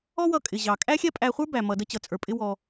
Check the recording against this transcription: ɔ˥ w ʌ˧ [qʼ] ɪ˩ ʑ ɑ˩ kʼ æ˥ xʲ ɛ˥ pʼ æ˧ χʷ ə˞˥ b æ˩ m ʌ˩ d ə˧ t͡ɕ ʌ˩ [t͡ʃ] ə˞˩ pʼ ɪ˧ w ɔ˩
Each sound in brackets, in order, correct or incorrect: incorrect: kʼ, incorrect: t͡sʼ

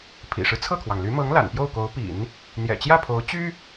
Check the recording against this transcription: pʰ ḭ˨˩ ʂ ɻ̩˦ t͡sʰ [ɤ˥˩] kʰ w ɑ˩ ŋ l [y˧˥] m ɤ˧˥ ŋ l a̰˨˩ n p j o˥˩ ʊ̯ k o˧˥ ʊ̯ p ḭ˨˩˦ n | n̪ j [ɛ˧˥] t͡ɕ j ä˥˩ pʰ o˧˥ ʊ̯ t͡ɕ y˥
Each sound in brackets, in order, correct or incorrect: correct, correct, incorrect: ɛ̰˨˩

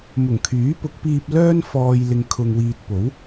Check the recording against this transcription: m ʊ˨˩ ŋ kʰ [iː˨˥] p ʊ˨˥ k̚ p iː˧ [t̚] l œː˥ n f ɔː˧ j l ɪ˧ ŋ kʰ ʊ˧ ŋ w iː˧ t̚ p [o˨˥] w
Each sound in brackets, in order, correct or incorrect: incorrect: yː˨˥, incorrect: p̚, correct

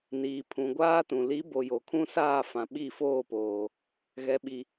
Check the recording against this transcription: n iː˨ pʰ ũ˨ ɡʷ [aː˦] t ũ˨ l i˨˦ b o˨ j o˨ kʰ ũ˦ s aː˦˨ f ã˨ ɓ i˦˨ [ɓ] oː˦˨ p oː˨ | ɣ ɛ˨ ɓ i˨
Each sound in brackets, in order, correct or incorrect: correct, incorrect: f

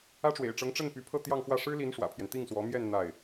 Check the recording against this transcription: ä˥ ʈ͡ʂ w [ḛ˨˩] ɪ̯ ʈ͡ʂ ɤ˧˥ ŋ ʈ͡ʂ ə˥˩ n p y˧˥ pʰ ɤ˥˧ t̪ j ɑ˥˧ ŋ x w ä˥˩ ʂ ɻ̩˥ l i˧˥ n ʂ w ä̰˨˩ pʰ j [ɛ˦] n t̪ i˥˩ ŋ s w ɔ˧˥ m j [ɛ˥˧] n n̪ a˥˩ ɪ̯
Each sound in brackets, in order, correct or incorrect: correct, correct, correct

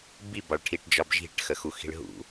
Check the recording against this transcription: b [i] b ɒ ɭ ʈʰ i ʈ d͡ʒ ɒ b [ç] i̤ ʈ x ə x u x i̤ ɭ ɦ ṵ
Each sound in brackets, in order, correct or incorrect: correct, incorrect: ʒ

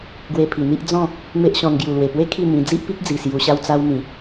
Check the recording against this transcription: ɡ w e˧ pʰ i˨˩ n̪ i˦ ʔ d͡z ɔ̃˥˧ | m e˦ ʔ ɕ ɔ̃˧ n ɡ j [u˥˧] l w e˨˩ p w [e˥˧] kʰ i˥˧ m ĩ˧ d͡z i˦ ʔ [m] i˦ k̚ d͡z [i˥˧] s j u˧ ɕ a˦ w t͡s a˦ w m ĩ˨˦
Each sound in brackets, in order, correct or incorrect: incorrect: u˨˩, incorrect: e˦, incorrect: p, incorrect: i˨˩

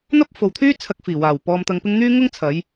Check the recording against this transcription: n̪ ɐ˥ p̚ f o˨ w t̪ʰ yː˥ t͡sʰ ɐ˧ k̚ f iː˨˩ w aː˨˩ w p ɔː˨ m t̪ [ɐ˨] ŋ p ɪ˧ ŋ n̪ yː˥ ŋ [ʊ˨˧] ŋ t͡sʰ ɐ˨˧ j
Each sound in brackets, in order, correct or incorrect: correct, incorrect: ʊ˥

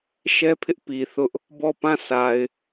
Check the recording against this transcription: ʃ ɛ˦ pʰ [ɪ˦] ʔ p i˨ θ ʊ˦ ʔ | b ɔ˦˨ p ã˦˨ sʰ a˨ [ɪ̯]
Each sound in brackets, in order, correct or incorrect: correct, correct

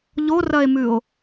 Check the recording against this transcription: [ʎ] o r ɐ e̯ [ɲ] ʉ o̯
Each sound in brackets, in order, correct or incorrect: correct, incorrect: m

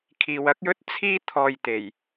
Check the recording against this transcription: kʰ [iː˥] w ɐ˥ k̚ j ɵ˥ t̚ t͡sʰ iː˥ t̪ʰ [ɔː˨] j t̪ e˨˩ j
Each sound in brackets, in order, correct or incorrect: incorrect: iː˨, correct

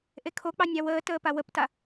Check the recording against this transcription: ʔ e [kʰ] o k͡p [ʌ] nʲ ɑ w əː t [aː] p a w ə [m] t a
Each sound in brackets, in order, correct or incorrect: correct, incorrect: ɑ, incorrect: əː, incorrect: p

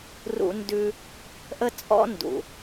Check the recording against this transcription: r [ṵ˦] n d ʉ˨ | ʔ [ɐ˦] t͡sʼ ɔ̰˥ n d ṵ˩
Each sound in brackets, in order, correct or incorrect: incorrect: ṵ˨, incorrect: ə˦

